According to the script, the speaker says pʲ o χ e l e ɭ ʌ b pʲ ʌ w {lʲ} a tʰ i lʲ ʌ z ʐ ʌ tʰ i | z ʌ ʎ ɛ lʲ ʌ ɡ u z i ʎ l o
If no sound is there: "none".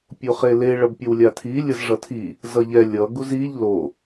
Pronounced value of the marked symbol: lʲ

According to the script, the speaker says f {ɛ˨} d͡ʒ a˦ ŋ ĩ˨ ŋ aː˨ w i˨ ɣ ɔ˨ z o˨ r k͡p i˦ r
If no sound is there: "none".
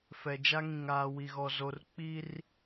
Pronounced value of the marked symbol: ɛ˨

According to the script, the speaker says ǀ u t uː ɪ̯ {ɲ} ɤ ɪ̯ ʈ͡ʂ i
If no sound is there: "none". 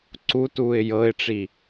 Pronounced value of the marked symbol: j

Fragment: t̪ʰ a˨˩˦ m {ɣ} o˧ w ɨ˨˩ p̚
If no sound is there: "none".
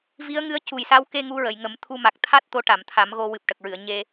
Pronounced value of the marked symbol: ɣ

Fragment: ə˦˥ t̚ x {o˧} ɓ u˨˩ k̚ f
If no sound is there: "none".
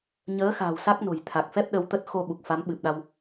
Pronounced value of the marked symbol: o˧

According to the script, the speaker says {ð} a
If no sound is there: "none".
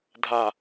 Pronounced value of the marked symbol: dʱ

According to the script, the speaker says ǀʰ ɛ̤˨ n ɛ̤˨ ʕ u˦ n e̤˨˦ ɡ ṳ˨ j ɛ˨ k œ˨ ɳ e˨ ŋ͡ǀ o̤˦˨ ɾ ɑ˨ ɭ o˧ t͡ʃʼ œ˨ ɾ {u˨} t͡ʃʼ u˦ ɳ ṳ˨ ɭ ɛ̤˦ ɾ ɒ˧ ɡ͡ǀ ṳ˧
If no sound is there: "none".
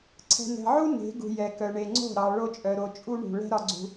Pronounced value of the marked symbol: o˨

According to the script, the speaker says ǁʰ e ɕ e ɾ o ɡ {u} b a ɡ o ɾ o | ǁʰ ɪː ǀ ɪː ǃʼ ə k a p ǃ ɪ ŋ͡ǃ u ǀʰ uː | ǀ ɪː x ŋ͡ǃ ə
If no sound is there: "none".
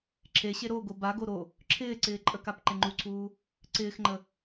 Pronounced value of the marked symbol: o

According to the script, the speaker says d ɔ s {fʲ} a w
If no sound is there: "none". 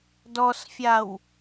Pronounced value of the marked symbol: fʲ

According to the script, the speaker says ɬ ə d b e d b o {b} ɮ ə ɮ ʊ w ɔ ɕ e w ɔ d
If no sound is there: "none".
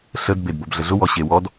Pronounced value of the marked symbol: b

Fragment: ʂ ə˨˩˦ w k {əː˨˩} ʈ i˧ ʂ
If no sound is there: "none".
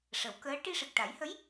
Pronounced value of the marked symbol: əː˧˥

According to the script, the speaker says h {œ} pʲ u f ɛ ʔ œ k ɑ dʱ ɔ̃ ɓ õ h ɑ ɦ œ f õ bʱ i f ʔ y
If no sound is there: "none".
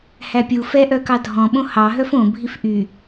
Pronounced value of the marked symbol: æ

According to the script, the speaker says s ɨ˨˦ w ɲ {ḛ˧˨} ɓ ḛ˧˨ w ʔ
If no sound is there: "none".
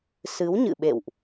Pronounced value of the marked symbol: ɨ̰˧˨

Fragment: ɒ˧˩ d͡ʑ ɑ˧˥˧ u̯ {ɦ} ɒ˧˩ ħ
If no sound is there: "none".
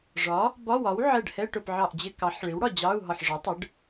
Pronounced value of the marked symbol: ɦ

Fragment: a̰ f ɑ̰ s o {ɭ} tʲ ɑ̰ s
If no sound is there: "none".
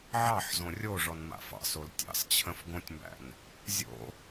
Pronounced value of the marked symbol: l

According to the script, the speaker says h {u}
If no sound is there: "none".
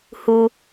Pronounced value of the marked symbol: u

